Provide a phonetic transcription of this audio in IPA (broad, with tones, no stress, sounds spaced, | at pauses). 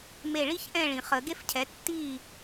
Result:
m e˧˩ ɭ i˥ ç ʔ ɛ̃˥˨ ɭ ĩ˩ χ ə˨˩˦ ɡ e˥ f cʰ ɛ˩˥ tː iː˥˨